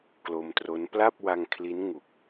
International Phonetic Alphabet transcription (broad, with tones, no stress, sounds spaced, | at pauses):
k l o˧ m t r o˦˥ n p l a˥˩ p̚ w a˧ ŋ kʰ l i˦˥ n ŋ u˨˩ k̚